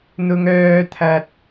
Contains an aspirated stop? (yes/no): yes